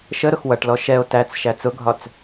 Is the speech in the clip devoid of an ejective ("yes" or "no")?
yes